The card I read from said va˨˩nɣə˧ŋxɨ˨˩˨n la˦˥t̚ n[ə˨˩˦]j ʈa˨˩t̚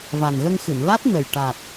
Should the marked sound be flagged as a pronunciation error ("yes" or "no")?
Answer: yes